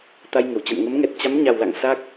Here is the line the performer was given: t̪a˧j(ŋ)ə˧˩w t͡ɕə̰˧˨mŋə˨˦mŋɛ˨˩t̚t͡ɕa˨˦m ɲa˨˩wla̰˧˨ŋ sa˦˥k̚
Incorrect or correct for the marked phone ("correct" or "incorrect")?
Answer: correct